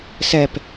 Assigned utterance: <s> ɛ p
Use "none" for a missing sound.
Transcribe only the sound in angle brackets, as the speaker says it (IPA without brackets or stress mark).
s